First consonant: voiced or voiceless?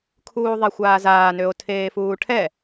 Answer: voiceless